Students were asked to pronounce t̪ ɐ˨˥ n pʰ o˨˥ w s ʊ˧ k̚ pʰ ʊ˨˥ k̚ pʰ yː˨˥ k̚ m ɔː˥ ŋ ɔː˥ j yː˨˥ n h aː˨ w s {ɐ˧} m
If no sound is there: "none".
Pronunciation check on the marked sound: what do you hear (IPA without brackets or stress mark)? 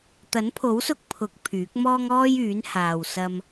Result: ɐ˧